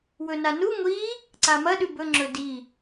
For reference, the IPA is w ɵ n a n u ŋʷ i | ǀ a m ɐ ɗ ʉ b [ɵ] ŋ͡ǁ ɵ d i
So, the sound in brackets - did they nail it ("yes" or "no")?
yes